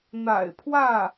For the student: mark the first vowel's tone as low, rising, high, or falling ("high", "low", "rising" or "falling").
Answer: low